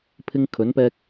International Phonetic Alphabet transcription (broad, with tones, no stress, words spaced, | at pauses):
pʰɪ˧ŋkʰɵ˨˧npɛː˧k̚